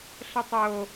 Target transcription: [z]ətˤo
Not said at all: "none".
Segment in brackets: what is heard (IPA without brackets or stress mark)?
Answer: ɬ